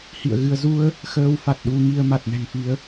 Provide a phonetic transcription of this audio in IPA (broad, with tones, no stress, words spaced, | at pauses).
hḭ˧˨ə̯ɣɨ˧ə̯ zu˧ə̯ | xəː˧wfa˨˩t̚ ɗu˧ŋi˧ə̯ ma˨˩t̚nɛ̤˨˩ŋfi˨˦ə̯